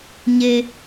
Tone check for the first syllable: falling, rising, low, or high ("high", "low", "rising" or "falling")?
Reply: low